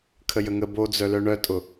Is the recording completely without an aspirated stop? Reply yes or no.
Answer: no